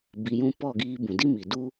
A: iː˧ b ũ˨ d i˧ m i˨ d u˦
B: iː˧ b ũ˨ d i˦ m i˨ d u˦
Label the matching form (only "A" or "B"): B